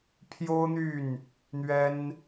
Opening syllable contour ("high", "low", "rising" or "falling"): high